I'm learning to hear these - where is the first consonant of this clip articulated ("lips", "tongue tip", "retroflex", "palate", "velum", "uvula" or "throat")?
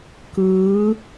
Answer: velum